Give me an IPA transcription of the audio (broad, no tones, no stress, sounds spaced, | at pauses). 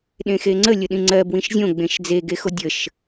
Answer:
ɗ ẽ x e ŋ͡ǀ ə lʲ ə ɗ ĩ ŋ͡ǀ ɜ b w ĩ ʃ zʲ õ ɡ͡b ẽ ʃ d͡z e ɡ e x o dʲ ə ʃ